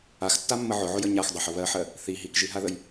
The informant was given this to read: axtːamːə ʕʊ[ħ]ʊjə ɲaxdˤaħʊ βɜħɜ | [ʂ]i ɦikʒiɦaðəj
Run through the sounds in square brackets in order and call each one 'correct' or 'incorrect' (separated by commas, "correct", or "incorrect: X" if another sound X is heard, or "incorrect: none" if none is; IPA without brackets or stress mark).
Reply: incorrect: ʕ, incorrect: θ